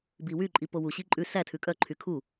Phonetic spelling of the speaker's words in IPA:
b i w y ǃʼ i p o w u ɕ i ǃʼ ʉ s æ tʰ ʉ kʼ œ ǃʰ y kʰ u

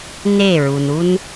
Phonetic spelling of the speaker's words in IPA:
n e˦˨ ɹ u˨ n u˦ n

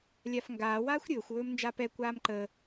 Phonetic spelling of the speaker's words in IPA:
lʲ a f ŋ ɡ aː w aː xʷ ɾʲ ɵː xʷ w ɵː m n d͡ʒ a p ɛ kʷ aː m ǃ əː

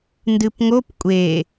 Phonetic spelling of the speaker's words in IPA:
n d ɨ p ŋ o p kʷʼ e

